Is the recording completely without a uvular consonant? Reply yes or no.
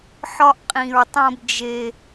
no